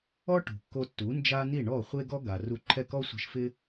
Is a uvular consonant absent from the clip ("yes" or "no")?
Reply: no